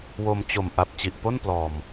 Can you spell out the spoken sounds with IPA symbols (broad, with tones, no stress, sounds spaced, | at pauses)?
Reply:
w o˧ m t͡ɕ o˨˩ m ʔ a˨˩ p̚ t͡ɕ i˨˩ ʔ p o˥˩ n p l ɔː˨˩ m